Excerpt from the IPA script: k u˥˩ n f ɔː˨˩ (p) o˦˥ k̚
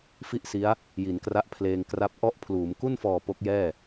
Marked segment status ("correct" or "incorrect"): correct